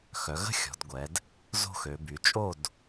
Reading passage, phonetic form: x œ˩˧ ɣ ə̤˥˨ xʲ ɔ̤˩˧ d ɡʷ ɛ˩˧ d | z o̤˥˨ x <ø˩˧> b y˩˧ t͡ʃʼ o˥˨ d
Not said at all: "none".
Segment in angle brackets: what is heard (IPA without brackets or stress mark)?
ø˩˧